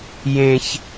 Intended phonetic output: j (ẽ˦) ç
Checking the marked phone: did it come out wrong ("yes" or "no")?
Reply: no